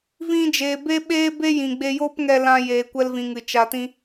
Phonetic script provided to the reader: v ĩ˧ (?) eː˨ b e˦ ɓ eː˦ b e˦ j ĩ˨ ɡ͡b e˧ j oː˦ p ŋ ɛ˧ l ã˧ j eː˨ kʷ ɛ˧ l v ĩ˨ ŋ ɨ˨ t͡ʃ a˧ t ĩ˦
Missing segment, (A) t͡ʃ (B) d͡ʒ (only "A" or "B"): B